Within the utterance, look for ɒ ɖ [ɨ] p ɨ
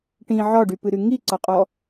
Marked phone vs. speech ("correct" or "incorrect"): incorrect